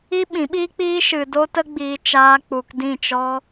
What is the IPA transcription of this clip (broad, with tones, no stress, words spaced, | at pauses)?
i˦ɓĩ˨˦ɓiː˦k͡piː˦ ʃɨ˧do˦tə˦ɡ͡biː˧ t͡ʃaː˧k͡pu˨k dĩ˦˨t͡ʃɔ˦